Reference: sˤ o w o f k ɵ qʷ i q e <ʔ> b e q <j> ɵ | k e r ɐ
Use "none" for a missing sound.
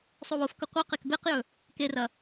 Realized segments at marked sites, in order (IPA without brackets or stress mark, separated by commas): k, j